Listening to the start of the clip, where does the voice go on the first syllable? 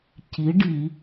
rising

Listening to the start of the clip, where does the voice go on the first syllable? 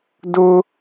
high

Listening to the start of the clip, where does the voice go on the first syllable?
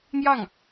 falling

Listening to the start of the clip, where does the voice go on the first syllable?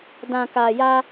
low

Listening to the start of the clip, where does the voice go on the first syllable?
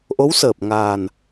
rising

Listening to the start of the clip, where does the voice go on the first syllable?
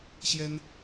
high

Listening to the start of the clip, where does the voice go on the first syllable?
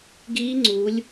rising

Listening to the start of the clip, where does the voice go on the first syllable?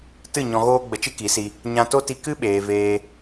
falling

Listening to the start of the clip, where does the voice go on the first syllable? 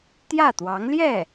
falling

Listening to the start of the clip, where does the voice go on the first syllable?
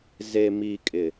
low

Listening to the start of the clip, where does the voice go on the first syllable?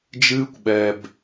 high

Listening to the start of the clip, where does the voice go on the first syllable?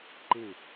falling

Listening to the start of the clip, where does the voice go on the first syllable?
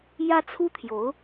high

